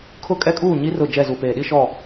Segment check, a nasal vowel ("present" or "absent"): absent